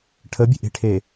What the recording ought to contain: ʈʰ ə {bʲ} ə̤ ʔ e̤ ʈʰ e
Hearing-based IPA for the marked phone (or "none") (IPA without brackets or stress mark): bʲ